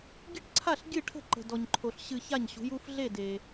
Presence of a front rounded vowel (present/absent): absent